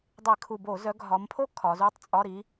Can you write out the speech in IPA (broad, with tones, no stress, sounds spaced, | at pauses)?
dˤ e˧˩˧ kʰ u˨˩ b o˧˩˧ z œ˨˦ ɡʱ ɒ˨˦ m pʰ o˥ kʰ ɒ˨˦ z u˧˥˧ tˤ t͡sʼ ɒ˧˥˧ ɾ i˨˦